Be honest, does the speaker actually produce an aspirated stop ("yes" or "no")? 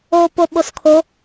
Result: yes